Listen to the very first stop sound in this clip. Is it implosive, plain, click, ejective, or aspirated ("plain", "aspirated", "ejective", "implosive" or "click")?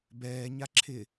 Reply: plain